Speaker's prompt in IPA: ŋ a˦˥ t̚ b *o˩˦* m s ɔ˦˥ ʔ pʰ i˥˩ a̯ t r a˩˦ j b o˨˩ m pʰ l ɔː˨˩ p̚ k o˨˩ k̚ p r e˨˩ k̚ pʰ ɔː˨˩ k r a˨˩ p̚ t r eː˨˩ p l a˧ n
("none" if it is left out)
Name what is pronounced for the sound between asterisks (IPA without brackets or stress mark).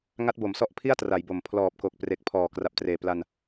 o˩˦